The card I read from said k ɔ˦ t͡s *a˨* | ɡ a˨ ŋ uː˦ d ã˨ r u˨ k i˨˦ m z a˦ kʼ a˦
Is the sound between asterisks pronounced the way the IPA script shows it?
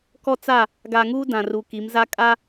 no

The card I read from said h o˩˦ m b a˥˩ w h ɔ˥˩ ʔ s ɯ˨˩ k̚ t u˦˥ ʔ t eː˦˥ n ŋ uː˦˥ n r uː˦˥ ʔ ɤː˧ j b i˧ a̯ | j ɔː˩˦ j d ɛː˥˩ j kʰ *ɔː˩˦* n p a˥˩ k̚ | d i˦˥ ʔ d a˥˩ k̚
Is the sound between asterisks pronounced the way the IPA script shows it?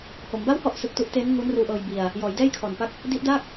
no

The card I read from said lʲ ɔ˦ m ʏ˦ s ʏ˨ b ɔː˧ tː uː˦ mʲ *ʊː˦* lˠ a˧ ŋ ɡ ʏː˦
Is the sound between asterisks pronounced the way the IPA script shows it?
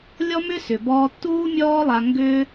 no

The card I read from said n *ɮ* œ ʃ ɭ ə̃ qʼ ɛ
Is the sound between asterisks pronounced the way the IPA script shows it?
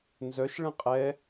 no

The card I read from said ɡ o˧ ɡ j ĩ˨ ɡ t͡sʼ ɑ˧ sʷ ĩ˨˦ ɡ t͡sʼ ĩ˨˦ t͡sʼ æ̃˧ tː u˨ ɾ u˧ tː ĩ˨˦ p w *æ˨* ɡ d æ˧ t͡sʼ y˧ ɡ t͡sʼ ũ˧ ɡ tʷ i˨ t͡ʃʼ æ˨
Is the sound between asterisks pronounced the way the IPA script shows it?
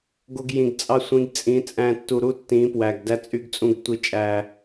yes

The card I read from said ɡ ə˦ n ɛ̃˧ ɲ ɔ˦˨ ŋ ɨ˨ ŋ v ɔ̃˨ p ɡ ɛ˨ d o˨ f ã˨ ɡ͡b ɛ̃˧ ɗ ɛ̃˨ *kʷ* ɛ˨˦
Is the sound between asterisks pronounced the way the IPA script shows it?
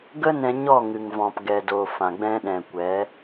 yes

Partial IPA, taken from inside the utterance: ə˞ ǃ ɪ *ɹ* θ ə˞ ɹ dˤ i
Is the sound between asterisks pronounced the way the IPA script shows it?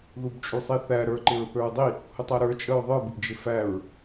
yes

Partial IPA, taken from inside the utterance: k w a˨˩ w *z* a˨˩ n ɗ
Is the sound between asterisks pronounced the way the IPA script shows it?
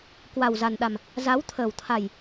yes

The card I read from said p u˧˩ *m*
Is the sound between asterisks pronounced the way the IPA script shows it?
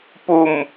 yes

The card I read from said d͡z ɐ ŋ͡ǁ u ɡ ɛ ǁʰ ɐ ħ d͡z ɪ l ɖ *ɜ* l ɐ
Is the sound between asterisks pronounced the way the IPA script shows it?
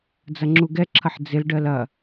yes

